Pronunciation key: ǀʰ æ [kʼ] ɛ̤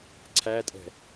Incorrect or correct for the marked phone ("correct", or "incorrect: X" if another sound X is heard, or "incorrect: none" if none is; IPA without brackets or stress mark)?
incorrect: tʼ